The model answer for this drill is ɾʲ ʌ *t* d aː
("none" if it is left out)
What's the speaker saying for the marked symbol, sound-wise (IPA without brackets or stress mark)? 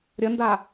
n